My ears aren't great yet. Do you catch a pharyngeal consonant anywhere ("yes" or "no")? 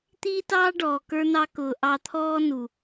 no